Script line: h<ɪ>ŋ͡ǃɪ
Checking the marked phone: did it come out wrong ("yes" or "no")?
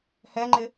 yes